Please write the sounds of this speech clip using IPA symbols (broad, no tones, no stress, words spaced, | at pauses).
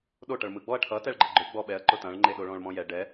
ɗoʈʌɭ mɯɡ͡bɔɐ̯ ʈʰʌ tɛɭɡ͡ǃəɡ͡ǃʊ ɡ͡bɔɓɛɐ̯ ǃʊtɐ̃ɭŋ͡ǃe ɗoɭɔ̃ɭmɔ̃jɛ ɖɛ